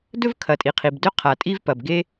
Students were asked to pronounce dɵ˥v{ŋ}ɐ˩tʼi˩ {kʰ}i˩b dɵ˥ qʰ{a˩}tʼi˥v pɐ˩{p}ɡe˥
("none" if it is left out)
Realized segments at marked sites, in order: kʰ, qʰ, a˩, b

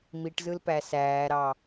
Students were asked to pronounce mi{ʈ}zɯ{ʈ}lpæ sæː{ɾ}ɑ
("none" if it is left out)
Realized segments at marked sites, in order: ʈ, none, ɾ

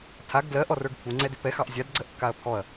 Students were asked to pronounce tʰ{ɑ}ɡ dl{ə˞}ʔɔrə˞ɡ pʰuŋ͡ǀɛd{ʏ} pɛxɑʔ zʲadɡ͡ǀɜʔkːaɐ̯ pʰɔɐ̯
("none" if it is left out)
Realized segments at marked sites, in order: a, ɜ, ʏ

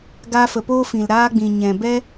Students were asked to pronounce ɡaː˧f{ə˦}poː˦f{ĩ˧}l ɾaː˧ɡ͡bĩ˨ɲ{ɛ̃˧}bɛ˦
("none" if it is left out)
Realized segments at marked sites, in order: ə˨, ĩ˨, ɛ̃˨

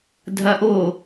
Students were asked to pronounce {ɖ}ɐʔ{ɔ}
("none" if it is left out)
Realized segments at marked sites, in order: dʱ, o

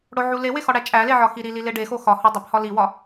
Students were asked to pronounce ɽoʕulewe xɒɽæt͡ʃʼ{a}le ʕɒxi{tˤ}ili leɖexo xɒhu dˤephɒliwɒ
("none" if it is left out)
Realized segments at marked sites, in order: æ, ɾ

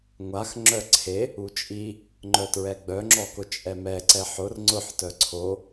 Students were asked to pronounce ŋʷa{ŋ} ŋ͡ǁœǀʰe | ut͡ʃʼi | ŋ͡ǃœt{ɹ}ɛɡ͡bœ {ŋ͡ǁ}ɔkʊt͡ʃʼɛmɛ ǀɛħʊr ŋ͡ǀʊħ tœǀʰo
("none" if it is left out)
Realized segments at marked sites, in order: x, ɹ, ŋ͡ǁ

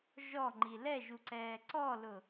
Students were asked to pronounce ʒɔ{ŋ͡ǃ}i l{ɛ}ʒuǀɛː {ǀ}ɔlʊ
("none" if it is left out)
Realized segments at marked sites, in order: ŋ͡ǃ, ɛ, ǀ

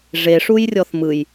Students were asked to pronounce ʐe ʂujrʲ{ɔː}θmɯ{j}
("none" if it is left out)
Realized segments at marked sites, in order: ɔ, j

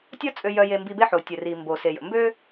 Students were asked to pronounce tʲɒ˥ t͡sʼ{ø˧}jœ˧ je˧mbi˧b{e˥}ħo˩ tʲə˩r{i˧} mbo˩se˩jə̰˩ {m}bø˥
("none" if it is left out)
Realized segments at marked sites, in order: ø˧, e˥, i˩, m

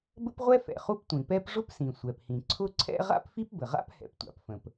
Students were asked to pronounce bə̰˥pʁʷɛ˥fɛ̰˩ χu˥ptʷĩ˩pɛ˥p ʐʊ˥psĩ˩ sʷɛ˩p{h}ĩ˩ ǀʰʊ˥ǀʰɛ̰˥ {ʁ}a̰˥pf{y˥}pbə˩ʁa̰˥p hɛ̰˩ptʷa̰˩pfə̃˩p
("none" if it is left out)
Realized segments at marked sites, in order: h, ʁ, i˥

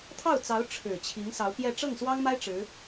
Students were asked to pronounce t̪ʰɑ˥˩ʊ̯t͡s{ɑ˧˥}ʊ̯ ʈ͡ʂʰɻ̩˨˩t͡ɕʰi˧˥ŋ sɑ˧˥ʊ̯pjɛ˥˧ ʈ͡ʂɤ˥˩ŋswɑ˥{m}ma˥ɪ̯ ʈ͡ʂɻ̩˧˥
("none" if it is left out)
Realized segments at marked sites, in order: ɑ˧˥, ŋ

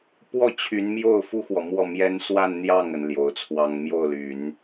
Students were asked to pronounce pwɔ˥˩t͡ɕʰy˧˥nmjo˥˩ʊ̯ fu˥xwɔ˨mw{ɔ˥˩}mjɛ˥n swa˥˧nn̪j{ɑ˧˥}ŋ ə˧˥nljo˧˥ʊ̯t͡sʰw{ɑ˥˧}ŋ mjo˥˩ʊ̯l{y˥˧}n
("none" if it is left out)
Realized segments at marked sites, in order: ɔ˥˩, ɑ˥˩, ɑ˥, y˨˩˦

